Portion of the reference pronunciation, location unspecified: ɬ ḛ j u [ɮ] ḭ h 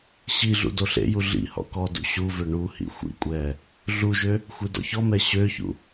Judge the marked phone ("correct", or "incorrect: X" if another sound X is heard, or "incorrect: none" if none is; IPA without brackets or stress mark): correct